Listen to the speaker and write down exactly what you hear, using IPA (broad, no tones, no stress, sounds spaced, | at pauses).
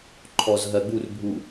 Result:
ǃʰ ɔ z ɦ ɜ ɡ͡b u r bʱ u